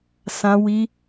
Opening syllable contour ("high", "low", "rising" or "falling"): high